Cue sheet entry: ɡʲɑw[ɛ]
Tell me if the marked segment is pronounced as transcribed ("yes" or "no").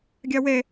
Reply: yes